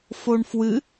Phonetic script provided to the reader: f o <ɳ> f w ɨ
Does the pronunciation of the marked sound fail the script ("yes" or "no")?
no